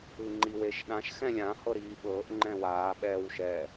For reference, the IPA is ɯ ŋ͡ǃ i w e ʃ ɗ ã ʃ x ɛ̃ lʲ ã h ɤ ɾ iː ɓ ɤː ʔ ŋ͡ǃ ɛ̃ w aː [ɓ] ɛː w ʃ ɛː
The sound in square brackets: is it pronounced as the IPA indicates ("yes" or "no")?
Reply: yes